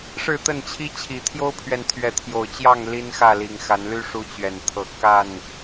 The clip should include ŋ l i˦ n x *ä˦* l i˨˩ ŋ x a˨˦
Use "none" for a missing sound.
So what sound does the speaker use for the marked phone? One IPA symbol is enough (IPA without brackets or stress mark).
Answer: ä˥˨